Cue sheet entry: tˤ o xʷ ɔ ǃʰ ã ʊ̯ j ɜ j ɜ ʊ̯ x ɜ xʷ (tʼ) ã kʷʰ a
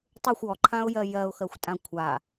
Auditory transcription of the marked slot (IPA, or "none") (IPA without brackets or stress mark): tʼ